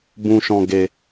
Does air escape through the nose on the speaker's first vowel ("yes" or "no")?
yes